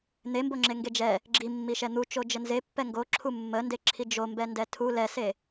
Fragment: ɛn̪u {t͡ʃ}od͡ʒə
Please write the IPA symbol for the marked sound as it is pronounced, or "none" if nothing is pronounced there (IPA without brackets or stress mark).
t͡ʃ